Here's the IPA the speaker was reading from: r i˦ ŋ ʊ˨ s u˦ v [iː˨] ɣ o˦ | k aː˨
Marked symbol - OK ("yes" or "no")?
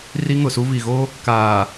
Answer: no